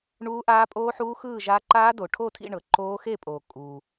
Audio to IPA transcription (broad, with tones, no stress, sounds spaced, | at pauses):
ɳ uː˦˥ ʔ aː˦˥ pʼ oː˦˥ ħ uː˦˥ x ɯː˥˧ ʒ a˦˥ ǃ aː˦˥ d o˨ ʈʰ o˥˧ tʰ ḭ˥˧ ɳ ɤ˨ ǃ oː˦˥ x e˥˧ pʼ oː˨ kʼ uː˨